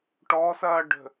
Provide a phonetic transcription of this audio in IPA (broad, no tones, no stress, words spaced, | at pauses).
ʈɔ sɐːɖə̤